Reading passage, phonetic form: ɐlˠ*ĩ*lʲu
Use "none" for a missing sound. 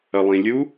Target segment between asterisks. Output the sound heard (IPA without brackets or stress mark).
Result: ĩ